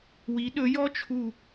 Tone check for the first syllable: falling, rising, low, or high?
rising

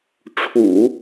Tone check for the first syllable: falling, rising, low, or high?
low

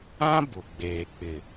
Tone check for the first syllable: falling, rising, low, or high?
high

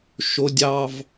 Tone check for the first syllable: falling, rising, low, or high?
high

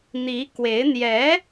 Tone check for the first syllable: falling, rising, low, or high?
rising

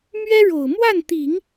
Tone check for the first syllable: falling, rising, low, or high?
high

